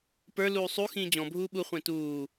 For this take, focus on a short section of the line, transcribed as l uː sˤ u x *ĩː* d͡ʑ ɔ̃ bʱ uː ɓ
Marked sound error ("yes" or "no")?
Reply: no